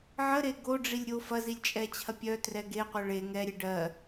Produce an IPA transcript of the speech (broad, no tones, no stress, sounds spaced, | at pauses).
ʕ ə ɾ e ɡ o ɖ͡ʐ i lʲ ɾʲ o f ɐ z i lʲ t͡ʃʼ ɛ t͡ɕʰ ɐ pʲ œ t r ɛ ɡ e qʷ œ ɭ e ŋ ɛ ɾʲ e ɖ ɜ